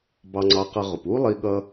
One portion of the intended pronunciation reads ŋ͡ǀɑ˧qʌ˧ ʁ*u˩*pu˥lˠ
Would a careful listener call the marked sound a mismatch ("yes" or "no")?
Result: yes